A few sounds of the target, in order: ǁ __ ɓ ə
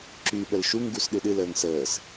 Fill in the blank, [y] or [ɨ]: y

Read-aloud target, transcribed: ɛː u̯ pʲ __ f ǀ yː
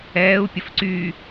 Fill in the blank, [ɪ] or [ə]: ə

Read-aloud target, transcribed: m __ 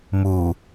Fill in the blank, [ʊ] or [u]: u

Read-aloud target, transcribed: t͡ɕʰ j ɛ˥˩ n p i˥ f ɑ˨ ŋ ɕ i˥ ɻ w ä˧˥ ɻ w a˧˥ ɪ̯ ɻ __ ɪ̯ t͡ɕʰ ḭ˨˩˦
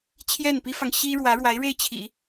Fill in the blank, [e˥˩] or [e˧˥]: e˥˩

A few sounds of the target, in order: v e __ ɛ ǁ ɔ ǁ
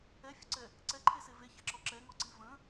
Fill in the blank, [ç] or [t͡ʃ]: ç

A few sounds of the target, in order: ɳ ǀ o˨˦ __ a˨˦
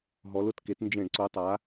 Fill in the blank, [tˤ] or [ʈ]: tˤ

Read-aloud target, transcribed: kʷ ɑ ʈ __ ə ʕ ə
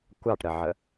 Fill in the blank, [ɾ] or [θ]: ɾ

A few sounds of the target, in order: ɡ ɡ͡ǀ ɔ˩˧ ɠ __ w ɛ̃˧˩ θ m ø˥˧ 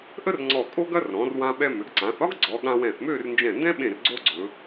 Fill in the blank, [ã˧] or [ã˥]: ã˧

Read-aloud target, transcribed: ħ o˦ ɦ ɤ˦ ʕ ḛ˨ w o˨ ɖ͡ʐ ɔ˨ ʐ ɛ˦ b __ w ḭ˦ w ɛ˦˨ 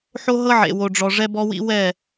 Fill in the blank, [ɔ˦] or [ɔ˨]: ɔ˦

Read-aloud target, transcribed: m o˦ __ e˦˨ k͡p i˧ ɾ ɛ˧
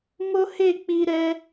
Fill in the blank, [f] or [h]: h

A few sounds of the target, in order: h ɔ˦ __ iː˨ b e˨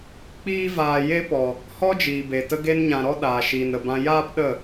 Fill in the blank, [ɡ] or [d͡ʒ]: d͡ʒ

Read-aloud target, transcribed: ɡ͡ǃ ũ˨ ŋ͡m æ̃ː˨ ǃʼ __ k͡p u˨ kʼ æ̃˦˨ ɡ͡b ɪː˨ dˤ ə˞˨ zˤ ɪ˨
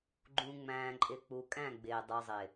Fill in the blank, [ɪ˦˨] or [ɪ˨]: ɪ˨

